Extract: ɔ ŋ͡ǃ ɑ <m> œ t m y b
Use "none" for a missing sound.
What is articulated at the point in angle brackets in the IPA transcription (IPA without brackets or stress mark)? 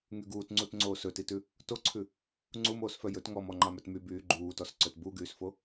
m